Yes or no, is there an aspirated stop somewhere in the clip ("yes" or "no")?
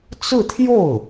yes